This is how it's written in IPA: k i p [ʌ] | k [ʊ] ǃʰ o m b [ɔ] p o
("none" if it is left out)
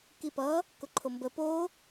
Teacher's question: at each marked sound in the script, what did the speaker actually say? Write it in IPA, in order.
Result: ʌ, ʊ, ə

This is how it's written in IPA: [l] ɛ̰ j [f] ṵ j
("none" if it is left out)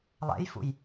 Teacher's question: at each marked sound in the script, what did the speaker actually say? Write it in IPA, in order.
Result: lˠ, f

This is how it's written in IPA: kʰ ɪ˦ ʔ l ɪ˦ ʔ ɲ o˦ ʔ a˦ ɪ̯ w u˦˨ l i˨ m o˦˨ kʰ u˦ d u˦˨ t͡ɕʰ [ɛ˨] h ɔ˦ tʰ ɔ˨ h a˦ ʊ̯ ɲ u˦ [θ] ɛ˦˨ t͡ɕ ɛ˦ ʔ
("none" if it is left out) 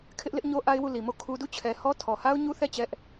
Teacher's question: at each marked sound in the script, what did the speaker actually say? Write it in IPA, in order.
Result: ɛ˨, θ

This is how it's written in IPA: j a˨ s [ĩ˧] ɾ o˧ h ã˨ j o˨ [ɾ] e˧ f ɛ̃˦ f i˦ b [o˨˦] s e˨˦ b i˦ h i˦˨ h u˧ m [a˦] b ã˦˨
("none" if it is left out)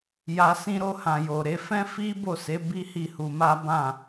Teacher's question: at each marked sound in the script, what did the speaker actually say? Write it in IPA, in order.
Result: ĩ˧, ɾ, o˦˨, a˦

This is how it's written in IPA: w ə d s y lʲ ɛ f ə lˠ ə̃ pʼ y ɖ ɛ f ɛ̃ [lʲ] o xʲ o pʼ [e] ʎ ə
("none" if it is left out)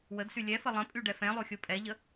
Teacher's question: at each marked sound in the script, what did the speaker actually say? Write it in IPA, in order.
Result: lˠ, ɛ

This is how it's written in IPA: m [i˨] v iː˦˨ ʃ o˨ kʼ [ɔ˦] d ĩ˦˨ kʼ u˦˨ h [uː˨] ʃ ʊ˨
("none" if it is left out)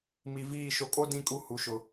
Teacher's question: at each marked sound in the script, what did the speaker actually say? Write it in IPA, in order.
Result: i˨, o˦, u˨

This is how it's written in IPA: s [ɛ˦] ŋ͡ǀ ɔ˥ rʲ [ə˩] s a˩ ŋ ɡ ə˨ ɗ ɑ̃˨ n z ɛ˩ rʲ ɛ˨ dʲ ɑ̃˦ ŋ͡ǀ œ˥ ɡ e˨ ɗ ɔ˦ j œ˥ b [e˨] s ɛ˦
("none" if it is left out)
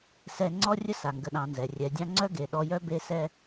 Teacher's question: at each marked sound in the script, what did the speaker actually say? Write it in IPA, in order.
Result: ɛ˦, ə˥, e˦

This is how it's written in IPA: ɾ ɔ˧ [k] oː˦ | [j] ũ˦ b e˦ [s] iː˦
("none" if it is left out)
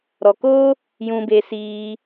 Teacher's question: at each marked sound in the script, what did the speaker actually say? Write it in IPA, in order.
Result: k, j, s

